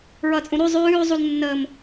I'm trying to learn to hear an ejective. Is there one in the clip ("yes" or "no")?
yes